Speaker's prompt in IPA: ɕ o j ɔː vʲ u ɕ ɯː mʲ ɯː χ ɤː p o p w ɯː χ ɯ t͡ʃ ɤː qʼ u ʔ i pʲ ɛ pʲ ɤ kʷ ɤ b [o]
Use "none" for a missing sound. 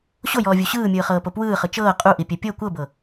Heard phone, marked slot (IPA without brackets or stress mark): ɤ